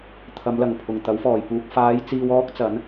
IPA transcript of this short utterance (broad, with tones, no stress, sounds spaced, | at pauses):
t̪ʰ ɐ˨˧ m l ɐ˨˩ ŋ pʰ ʊ˨˩ ŋ t̪ ɐ˨˥ w f ɔː˨˩ j p uː˨ k̚ f aː˨˧ j t͡s iː˧ w ɔː˥ k̚ t͡s ɐ˨˥ n